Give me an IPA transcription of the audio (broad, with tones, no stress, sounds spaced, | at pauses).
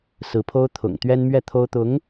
s ɹ̩˧˥ pʰ o˥ ʊ̯ t̪ʰ ʊ̰˨˩ ŋ t̪ ɥ ɛ˥ n m ɥ ɛ˥˩ t̪ʰ o˥ ʊ̯ t̪ ʊ˧˥ ŋ